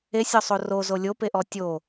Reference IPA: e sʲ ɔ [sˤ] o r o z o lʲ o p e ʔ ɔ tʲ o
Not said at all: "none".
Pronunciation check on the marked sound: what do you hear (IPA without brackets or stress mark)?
sˤ